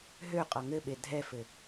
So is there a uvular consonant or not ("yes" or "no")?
yes